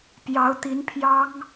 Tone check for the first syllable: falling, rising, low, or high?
rising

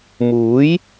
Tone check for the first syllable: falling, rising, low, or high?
rising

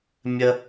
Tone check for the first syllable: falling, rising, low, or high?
high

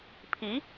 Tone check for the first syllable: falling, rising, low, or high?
rising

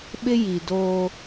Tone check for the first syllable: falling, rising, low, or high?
high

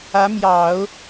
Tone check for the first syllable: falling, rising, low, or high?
rising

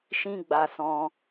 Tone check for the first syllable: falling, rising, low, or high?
high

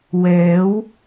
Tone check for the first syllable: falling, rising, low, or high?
rising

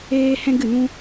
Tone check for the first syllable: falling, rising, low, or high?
high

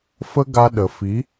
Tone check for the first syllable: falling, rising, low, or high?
high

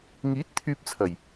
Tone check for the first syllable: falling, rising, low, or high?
rising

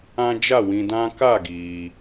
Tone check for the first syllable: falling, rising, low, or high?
high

